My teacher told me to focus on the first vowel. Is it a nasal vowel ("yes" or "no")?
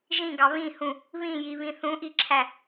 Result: yes